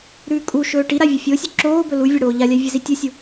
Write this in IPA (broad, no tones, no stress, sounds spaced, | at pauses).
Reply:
ɾ ʉː kʼ u ʃ ɵː ʈ i ɾ a vʲ ɐ fʲ o sʲ ɵ ǁ oː b ɵ l u vʲ ɐ ɽ oː ʎ a lʲ a vʲ e z i tʲ u sʲ u